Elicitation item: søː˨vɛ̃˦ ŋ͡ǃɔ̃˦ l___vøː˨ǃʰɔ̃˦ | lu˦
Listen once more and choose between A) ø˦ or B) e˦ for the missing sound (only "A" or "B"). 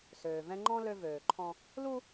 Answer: A